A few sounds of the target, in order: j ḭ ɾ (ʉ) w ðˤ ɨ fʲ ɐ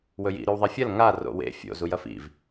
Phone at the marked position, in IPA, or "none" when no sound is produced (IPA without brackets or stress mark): ʉ